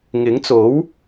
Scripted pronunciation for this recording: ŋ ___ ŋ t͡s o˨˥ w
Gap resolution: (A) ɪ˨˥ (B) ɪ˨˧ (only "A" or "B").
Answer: A